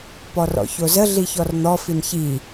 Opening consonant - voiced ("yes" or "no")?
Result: no